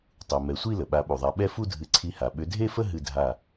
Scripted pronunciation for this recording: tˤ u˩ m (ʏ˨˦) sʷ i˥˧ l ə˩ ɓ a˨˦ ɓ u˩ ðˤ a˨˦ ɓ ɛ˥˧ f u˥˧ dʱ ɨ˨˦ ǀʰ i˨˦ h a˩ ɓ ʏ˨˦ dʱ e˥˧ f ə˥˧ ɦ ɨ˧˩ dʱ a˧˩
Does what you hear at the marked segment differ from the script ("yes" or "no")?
yes